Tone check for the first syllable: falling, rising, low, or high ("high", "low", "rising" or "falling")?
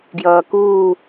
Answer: low